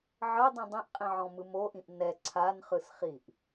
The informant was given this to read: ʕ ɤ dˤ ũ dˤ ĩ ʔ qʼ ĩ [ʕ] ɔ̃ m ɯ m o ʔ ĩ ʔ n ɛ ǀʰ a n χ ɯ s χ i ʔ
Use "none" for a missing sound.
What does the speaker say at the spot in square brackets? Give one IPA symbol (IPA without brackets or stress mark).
ʕ